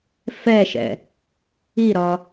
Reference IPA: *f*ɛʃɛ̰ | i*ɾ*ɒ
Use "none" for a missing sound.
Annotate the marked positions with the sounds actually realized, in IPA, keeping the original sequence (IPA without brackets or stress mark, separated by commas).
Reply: f, ɾ